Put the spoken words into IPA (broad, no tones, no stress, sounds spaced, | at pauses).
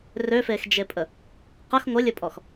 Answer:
r ø f e x d͡ʒ e pʼ ə | q ə x ŋʷ ɘ lʲ ɘ pʼ ɔ x